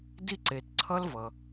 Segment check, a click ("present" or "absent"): present